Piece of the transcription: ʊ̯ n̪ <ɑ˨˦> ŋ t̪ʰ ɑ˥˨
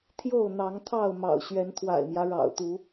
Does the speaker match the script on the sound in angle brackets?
yes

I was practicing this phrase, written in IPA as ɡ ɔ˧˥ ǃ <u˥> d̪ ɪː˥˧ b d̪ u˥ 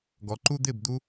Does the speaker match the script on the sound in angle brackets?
yes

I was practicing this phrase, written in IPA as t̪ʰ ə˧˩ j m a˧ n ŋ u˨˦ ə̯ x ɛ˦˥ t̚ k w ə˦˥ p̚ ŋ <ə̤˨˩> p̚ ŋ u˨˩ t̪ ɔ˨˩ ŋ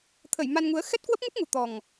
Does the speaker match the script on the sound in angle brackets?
no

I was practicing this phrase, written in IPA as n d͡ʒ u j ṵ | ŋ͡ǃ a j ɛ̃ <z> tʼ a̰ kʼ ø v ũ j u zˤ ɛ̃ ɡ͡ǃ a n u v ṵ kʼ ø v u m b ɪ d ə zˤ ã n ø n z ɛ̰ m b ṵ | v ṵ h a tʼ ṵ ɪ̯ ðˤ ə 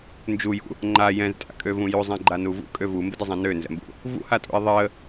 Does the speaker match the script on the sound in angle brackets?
yes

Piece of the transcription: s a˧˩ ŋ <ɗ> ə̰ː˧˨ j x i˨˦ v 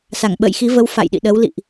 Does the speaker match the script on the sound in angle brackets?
no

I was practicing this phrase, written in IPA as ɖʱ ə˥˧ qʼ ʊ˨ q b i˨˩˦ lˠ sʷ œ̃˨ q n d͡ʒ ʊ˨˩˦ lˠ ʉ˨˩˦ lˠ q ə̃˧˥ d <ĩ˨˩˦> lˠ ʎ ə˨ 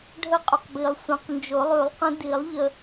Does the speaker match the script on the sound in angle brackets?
no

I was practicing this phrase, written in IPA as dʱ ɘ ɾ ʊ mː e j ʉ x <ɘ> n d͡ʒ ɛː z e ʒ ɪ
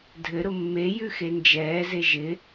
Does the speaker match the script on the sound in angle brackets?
no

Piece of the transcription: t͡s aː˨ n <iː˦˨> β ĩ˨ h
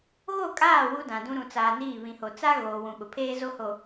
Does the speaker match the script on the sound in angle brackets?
yes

